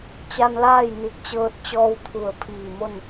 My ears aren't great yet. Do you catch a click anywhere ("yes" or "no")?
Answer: no